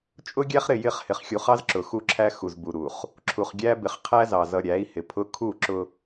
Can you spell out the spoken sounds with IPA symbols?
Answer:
t͡ʃʼ ʊ˦ ɡʲ æ˦ χ ɾ ɪ˦˨ j ɪ˦˨ χ h ɪ˨ χ xʲ u˨ χ ɑ˦ z ǁ ʊ˨ x u˦ ǁʰ æ˦ x u˨ z b u˨ ɾ u˨ χ | ǁʰ u˨ χ ɡʲ æ˦ b ɪ˨ χ qʰ æ˦ z ɑ˨ z ʌ˨ ɾʲ æ˨˦ i̯ h ɪ˨ pʰ ʊ˦ kʰ u˦˨ ǁ ʊ˦

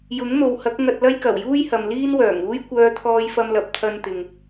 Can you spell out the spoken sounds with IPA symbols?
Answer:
j ʊ˨˥ ŋ n̪ o˨ w h ɐ˨˥ k̚ ŋ ɐ˧ t̚ l ɐ˥ j k ɐ˨˩ w j uː˥ j h ɐ˨ m l iː˥ n w œː˨˩ ŋ uː˥ j kʷ œː˧ t̪ʰ ɔː˧ j f ɐ˧ m l ɐ˨ p̚ t̪ʰ ɐ˥ n t̪ ɪ˧ ŋ

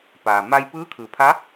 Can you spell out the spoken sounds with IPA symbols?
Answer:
p aː˩ m a˧ j p ɯː˧˥ kʰ ɯː˩ pʰ a˧˥

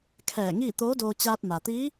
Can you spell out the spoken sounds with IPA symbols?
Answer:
kʰ ɛː˧˩ ŋ iː˥˨ t̪ oː˧˥ d oː˧ t͡ɕ aː˧ t̚ m a˩ t̪ iː˧˥

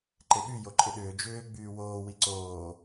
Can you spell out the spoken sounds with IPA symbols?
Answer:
ǃ e ɓ y j o ǃʼ ɪ ɗ ʏː d͡ʒ ʏː ɡ͡b yː w oː w i ǀ oː

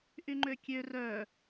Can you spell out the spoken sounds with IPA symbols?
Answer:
ʔ y ŋ͡ǃ ø kʲ ø r œ

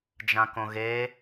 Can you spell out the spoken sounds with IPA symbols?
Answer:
d͡ʒ ã k õ ɣ e

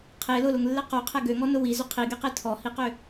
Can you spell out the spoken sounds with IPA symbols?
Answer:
qʰ e l ʊ l ʊ ŋ lː e q o qʰ ɛ ɡ ø ŋ ɔ n ʊ w i z ʏ qʰ i ɡ e q e tʰ ɔ h i q ʏ

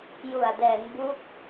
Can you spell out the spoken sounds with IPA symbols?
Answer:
j u˨˩ a̯ d ɛː˩˦ ŋ b u˦˥ k̚

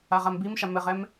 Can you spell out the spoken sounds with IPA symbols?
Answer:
a ʁ a m b i m ʃ a m ɘ ʁ ɛ m

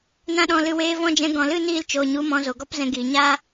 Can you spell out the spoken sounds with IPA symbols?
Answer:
n ã˧ ɗ ɔ̃˨ l ɨ˨ w eː˧ v ɔ̃˦˨ d͡ʒ ɛ̃˧ ɡ ɔ̃˨ l ɨ˦˨ n iː˦˨ l t͡ʃ oː˨ ɲ u˨˦ m ɔ̃˧ z o˨ ɡ ɔ˦ p z ɛ̃˧ ɡ iː˨ ɲ aː˦

